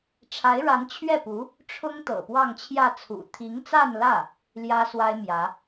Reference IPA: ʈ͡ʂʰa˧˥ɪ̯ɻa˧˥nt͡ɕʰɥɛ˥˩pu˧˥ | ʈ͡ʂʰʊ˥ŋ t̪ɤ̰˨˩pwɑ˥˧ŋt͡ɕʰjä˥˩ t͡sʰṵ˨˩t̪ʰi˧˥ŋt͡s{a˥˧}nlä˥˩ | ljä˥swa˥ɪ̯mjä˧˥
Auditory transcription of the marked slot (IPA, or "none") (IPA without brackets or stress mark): a˥˧